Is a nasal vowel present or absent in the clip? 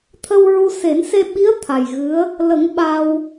absent